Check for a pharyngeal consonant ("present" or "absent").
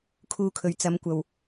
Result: absent